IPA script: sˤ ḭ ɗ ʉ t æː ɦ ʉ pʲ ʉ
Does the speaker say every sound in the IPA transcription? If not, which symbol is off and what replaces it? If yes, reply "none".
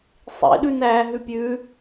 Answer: t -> n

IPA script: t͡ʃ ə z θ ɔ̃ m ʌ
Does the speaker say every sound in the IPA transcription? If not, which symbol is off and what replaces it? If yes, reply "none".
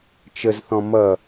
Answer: none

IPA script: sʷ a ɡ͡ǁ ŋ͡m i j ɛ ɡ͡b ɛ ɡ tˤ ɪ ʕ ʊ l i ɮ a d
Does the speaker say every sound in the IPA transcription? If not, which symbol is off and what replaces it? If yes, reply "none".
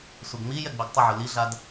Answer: ɡ͡ǁ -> ɡ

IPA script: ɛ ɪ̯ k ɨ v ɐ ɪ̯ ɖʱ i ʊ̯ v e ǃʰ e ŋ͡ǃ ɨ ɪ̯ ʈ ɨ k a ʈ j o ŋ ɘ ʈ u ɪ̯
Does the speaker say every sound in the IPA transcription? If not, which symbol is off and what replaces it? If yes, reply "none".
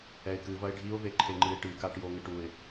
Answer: none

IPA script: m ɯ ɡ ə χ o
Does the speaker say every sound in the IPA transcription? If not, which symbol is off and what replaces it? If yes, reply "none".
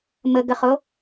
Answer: ɯ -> ə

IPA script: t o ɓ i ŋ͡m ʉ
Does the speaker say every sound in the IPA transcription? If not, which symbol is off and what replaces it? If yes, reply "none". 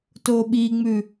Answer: none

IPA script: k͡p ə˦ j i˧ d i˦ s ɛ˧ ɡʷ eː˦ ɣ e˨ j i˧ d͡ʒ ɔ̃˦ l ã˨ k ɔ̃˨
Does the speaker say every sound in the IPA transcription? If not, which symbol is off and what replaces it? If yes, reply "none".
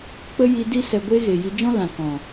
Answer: none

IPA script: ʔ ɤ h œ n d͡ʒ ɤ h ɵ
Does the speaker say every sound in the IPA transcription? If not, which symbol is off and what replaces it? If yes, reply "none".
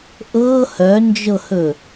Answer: none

